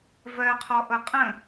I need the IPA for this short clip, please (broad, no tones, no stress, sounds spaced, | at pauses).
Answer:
v ɜ qʰ ɔ ʔ ɤ qʼ ə̃